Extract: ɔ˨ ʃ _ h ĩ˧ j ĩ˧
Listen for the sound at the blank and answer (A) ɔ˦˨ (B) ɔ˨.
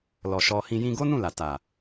B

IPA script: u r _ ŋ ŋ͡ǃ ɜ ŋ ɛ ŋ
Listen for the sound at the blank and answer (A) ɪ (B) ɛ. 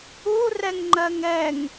B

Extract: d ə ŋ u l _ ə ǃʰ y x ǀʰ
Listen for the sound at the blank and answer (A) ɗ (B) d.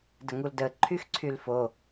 B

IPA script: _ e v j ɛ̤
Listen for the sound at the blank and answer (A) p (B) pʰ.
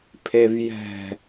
B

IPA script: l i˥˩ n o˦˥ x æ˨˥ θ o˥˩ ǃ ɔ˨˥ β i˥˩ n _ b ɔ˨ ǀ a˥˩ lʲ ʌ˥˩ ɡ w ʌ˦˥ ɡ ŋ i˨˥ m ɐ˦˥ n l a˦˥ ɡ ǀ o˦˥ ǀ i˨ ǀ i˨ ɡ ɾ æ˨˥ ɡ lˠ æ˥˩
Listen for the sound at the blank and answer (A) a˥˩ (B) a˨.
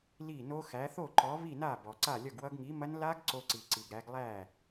A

